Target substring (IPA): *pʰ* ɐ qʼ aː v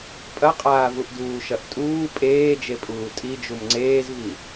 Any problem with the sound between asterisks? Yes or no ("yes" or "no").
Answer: yes